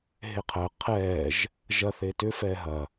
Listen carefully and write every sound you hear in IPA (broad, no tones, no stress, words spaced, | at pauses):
ɦeqʰəː qʰɛːʒ | ʒɐ θetʏ fɛːɦɐ